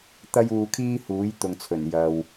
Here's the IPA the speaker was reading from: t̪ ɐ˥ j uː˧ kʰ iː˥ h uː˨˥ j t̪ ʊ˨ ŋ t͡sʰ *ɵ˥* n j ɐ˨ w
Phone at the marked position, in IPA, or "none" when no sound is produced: ɵ˨˩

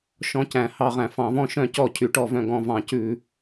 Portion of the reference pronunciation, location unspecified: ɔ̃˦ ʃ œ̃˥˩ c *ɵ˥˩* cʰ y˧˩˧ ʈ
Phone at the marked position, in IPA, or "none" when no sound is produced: ɔ˥˩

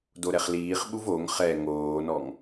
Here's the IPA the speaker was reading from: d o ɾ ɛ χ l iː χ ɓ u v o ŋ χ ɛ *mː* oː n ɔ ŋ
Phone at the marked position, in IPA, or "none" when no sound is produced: ŋ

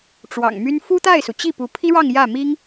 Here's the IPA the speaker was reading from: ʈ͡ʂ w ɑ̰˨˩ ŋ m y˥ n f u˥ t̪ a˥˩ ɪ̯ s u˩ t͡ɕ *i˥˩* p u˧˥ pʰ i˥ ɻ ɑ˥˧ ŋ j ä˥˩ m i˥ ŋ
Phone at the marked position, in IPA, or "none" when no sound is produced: i˥˩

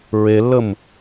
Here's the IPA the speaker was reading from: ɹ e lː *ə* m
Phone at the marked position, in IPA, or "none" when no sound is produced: ə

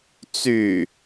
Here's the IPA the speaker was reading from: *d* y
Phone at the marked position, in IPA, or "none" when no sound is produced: t͡s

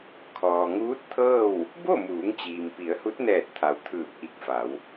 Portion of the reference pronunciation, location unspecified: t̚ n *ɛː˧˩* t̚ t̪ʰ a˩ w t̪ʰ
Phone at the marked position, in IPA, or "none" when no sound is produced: ɛː˧˩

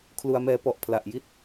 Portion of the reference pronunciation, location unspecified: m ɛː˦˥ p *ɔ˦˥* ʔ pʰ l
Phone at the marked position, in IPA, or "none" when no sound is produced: ɔ˨˩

